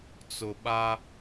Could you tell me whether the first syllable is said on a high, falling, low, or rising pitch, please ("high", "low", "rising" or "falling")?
low